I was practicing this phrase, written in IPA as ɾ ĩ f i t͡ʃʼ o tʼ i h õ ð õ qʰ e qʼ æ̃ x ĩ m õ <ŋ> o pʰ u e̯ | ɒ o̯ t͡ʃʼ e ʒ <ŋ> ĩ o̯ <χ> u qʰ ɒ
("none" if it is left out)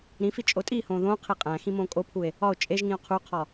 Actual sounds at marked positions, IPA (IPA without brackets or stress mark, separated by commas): kʼ, ŋ, qʰ